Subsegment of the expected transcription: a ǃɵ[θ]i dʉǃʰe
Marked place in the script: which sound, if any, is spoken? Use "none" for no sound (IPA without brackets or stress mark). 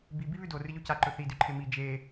θ